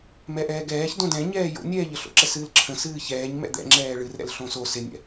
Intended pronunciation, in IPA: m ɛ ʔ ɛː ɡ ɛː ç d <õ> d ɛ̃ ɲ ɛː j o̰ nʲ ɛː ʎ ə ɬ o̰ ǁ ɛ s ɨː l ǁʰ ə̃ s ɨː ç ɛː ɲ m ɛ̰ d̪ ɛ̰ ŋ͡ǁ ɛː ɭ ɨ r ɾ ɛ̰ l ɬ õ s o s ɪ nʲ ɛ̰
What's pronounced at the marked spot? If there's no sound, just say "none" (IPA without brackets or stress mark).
õ